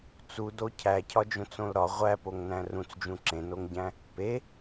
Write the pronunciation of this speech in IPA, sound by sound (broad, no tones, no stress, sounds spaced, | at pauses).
t͡s u d o cʰ æ cʰ ɒ d͡ʒ õ t͡s õ l ɾ ɒ ʁʷ æ p o ŋ n æ̃ r ũ t͡s d͡ʒ ũ ǁ ẽ n o ŋ ɟ æ̃ | p e